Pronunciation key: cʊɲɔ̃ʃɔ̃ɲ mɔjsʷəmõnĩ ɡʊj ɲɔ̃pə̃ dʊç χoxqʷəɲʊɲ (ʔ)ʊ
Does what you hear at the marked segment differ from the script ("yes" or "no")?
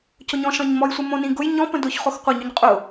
yes